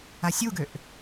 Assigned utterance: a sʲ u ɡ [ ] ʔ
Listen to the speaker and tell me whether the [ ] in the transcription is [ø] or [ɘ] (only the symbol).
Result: ø